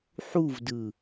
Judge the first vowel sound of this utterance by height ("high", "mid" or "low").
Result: high